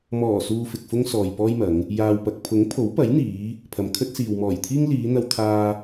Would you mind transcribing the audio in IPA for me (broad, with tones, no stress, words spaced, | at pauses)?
mɔː˨˩suː˨ fɪ˨k̚fʊ˥ŋsɔː˨j pɔː˥jmɐ˨˧ŋ | jaː˨wpɐ˨k̚ pʰʊ˨˥ŋpʰo˨˥wpɐ˨˥jn̪iː˨˧ | pʰɐ˨mkʰɵ˥t̚siː˨w mɔː˨˩jt̪ʰiː˥ŋ liː˨˧n̪ɐ˧wt̪ʰaː˧